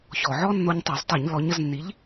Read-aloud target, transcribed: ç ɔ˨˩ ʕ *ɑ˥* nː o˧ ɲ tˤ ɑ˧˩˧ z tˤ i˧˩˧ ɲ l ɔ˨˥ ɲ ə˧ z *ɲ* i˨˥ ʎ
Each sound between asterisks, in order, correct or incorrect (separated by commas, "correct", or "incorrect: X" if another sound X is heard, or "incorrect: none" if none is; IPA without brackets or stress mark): incorrect: ɔ˥, incorrect: nː